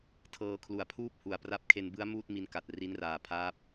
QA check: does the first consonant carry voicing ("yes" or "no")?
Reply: no